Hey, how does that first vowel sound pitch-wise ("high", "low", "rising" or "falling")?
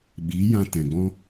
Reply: rising